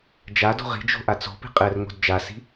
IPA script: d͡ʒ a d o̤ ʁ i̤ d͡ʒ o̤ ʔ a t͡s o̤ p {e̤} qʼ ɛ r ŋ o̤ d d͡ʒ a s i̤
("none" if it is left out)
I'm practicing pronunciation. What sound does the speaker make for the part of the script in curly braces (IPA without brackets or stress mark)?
i̤